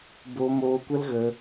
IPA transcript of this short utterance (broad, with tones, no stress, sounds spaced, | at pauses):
b o˧ m oː˧ kʷ ə˦ l ɣ ə˧